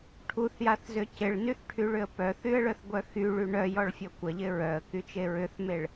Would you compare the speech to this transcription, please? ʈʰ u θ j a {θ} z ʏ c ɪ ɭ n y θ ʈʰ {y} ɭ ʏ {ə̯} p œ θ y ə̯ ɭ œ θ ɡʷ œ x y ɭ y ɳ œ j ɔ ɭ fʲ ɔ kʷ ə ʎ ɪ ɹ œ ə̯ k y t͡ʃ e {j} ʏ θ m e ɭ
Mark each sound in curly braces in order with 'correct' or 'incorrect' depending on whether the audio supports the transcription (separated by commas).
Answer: correct, correct, correct, incorrect